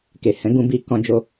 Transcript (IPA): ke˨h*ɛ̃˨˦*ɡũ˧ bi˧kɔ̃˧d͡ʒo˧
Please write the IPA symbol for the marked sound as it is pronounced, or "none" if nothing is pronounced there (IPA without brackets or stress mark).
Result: ɛ̃˨˦